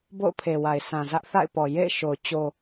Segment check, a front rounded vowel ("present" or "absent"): absent